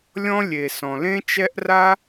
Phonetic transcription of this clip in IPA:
lʲɔ̃˦lʲe˨ sɔ̃˨lẽ˦t͡ʃɛ˦ʔ ra˦

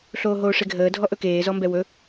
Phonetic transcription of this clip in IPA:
ɬoːɦoːʂeɡʱəː dʱɔʔɵkeː zɔmbɛwɵ

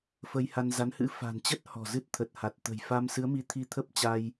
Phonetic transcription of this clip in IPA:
fə˧jha˧nza˨˦nhɨ̰˧˥ fa̤˨˩nt͡ɕə˦˥t̚ hɔ̤˨˩zɨ˦˥t̚t̪ʰə˨˩t̚ ha˨˩t̚t̪ə̤˨˩j fa˧msɨ˨˦ə̯mi˨˦t̪ʰi˧ t̪ʰə˦˥p̚t͡ɕa˧j

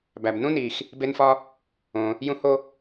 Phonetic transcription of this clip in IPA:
bæ˩b nũ˥ni˩x | be˥nfɒ˥ | õ˩ | jũ˥ho˥

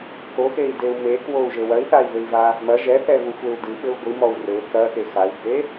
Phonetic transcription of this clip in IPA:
koxei̯deu̯ mekwou̯ʒɘ wɐi̯θai̯vɘi̯va | mɐ ʒɛθɛvuxʷeu̯ dɨɓɘu̯ ɡʷɨmɔu̯ rɘ kɐxe xai̯bʱe

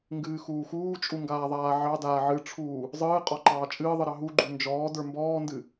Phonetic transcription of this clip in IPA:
ŋɡɨːxuːxuːt͡ʃʼu ŋɡaːðˤaːʕɑdaː ʕɨʈ͡ʂʰuː | zˤɨː qʼɔǃɑːt͡ʃʼɨːðˤɨ ɾɑɦuɡ͡ǃu nd͡ʒɔː də˞mbɔːndɨ

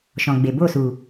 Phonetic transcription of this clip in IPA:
ʃɔ̃˨ɡ͡be˨bo˦˨su˨

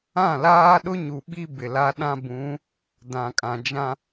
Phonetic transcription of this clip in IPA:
ã˦˨ laː˦ɗʊ˦ɲu˨ ɓi˦ bɪ˨la˦ ɗã˦bũ˨˦ | dã˨kʼã˨ d͡ʒã˦

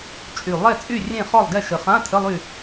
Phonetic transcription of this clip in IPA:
t͡ʃʼy˨˩ lˠɛ˦˨t͡sʼy˦˨rʲẽ˦˨ χɔ˦˨lˠɡɛ˦˨ʃə˨˩ χã˧˥˧tʰə˧˥˧lˠy˦˨

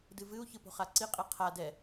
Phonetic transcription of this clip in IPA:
dɨvɨu̯ çɨpo̤χaǀi qʼiqʰa dɛ

